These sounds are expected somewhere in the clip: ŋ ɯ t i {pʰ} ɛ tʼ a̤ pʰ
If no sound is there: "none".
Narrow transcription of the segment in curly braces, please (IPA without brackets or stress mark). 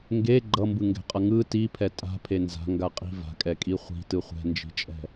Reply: pʰ